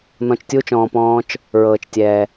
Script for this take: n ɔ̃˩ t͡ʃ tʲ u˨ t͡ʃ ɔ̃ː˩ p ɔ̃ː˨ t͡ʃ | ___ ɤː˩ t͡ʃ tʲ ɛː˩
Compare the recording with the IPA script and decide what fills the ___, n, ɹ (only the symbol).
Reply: ɹ